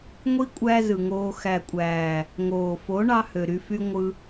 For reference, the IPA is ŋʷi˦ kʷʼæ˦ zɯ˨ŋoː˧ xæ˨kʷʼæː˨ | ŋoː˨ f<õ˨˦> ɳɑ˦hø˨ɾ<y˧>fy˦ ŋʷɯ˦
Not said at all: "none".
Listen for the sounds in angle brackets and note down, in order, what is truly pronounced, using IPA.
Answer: o˨˦, y˧

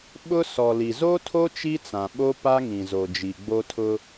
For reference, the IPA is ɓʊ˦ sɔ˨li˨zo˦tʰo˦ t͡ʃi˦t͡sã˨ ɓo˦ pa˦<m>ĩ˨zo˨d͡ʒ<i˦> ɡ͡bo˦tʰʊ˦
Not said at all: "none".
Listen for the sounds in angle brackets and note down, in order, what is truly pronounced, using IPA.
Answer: ŋ, i˨

